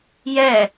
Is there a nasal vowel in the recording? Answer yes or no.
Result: no